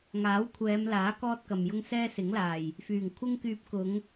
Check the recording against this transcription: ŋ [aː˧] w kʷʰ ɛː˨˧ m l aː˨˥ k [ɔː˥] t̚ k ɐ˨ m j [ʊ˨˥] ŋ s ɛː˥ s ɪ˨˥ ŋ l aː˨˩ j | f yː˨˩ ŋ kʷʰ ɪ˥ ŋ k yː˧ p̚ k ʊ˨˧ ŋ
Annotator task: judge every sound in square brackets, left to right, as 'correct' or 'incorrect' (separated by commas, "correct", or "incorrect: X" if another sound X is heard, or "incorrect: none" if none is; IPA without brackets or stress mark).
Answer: incorrect: aː˨˥, correct, incorrect: ʊ˥